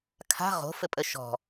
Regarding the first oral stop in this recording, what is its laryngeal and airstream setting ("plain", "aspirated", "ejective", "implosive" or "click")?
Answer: aspirated